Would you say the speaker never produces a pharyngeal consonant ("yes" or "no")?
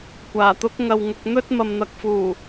yes